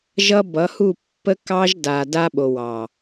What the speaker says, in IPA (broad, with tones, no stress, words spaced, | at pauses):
ʒʌ˦ bʌ˨˦hu˦˨ pːə˦kɑ˦ʒda˨ da˦ɓo˨wɑ˨